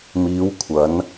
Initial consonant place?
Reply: labial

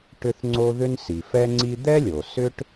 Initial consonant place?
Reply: retroflex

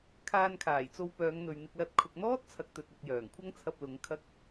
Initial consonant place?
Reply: velar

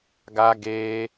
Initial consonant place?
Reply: velar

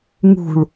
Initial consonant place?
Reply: velar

